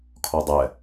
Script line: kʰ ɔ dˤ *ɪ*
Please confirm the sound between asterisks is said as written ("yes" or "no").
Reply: no